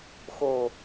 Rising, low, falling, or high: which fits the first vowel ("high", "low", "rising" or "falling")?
falling